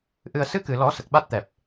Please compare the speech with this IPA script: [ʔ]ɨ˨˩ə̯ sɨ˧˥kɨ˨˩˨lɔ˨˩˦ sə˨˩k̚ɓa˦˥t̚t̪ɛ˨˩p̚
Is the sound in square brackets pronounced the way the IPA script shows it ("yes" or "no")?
yes